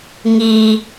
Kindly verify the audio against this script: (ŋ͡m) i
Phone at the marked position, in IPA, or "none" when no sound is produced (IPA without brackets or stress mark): ŋ